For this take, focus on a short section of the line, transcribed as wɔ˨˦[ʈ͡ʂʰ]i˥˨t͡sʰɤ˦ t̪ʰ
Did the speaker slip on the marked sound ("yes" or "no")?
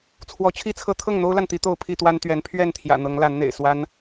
yes